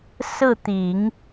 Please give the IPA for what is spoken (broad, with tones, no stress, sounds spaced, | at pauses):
s ɹ̩˥˩ t̪ i˨˩˦ ŋ